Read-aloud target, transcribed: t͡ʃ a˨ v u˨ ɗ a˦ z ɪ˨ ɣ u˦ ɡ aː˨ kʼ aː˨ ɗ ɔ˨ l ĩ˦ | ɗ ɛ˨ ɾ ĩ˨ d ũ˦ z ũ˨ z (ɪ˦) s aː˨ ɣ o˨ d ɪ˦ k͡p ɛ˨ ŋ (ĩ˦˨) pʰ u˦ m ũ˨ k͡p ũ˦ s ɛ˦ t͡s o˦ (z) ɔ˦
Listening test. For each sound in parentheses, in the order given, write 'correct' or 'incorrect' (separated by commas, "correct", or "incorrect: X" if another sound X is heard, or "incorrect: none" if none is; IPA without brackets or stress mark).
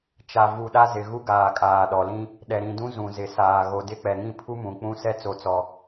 incorrect: ɪ˨, correct, incorrect: t͡s